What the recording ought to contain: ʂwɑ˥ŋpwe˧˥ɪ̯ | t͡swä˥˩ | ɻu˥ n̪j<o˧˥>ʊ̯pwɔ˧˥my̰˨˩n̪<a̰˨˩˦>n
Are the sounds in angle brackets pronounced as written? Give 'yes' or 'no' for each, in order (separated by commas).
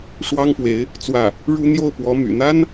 no, no